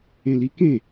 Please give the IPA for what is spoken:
ẽ l i k ẽ

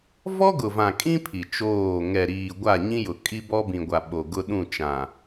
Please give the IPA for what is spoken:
v ɔ˦ ɡ ʊ˨ v ã˨ kʼ ĩ˦ pʰ i˨ t͡ʃ oː˦˨ ŋ ɛ˨ ɾ iː˨ ɡʷ a˦˨ ɲ ĩ˦ j ʊ˨ kʼ i˦ b ɔ˦ b ĩ˨ ɡʷ a˨ ɓ o˨ ɡ ʊ˦ ɗ ũ˦˨ t͡ʃ ã˨

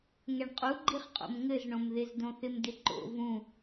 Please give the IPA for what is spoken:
ŋ ɛ ɳ qʼ u ɡ͡ǃ i χ qʼ o̰ m ŋ ɘ z ɳ õ m ð ɪ z d õ θ ɪ m d ɪ ǃ o̰ v ũ

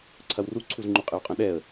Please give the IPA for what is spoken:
ǀʰ ɐ w r u ǀʰ u z ŋ͡ǃ u qʼ e w qʼ ɐ̃ ɗ ɛ ə̯

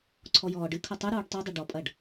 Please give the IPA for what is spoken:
ǀʰ ɔ j ɔː ɖ ɨ kʰ ɐ tˤ ɨ ɾ uː ɖ tˤ u dˤ ɨ ɖ ɔ pʼ ɐ ɖ

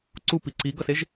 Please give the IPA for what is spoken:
ǀ u p i ǀ i ɡ ʌ s e ʒ

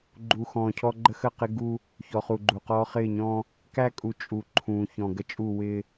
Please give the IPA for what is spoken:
ɡ͡ǃ u˨ x ɔ̃ː˨ cʰ ɔ˦ ɡ͡ǃ ə˦ x ə˦˨ q ɪ˦ ɡ u˦ | ç ɔ˨ χ u˨ ɡ͡ǃ u˨ q ɔː˦ χ ɪː˦˨ ɲ ɔ̃ː˦ | k æ˦ kʼ u˨ t͡ʃʼ u˨ ǃʰ ũː˨ ç ɔ̃˨ ɡ ə˦ t͡ʃʼ u˦˨ w ɪː˦

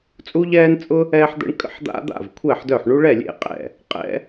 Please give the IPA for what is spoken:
t͡sʼ u˦ ʎ ɛː˦ n t͡sʼ ʊ˦ | ɛː˦ ħ d̪ ə̰˦ ɳ kʼ ə̰˥˩ ħ d̪ a̰˦ d̪ a̰˥˩ v kʷʰ ɛː˥˩ ħ d œ˥˩ ħ ɳ u˦ ɭ ɛ˥˩ lʲ ḛ˥˩ qʼ ɛ̰˥˩ | qʼ ɛ̰˦

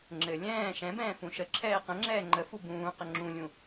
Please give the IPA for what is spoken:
ŋ͡ǁ ɘ lʲ ɛ̃ː ʃ ɛ̃ b ɛ̃ː f ũ ʃ ə ǁʰ ɛː q ə̃ ŋ͡ǁ ɛː ŋ͡ǃ ə f u b ũː q ə ŋ͡ǁ ũ lʲ ũ

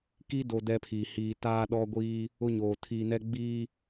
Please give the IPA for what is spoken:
k i˦ d o˨ d ɛ˦ pʰ iː˨ h iː˨ t aː˦ ɗ ɔ˦ ɡʷ iː˦ | ʊ˦ ɲ oː˨ tʰ iː˨ n ɛ˦ ɡ͡b iː˦

